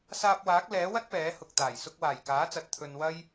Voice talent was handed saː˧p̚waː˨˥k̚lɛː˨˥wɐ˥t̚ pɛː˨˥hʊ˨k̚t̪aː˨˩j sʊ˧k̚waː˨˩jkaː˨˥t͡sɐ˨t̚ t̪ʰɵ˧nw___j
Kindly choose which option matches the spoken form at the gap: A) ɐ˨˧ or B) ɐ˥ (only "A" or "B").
B